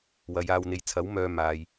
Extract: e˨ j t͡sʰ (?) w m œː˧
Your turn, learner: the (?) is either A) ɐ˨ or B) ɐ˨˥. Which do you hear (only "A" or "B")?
B